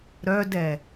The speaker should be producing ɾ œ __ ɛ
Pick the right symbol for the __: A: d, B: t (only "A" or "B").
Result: A